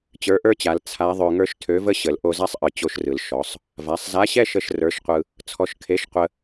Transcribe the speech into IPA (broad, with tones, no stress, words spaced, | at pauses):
t͡ɕə˞˧˥ʔə˞˥t͡ɕa˩˧l t͡sʰa˧˥ðˤø˧ ŋə˞˥ʃtʰø˧˥və˥ ɕə˩˧l ʔo˧za˥sˤʔɯ˩ t͡ɕo˧ʃrɯ˩l ʃɔ˩˧sˤ | va˩˧sˤza˧˥ɕɛ˥ʃə˧ʃ rə˞˧˥ʃqʷɯ˧ | t͡sʰɔ˧ʃkʰe˧˥ʃ qʷə˧